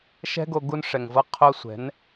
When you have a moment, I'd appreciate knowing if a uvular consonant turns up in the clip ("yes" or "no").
yes